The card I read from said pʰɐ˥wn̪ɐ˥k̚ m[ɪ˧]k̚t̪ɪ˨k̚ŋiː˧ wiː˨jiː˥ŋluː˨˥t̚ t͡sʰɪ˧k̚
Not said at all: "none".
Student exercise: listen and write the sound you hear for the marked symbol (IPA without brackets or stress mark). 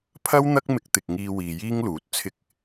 ɪ˧